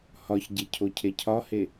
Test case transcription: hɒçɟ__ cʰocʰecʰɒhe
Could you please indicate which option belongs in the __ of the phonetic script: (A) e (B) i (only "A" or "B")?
A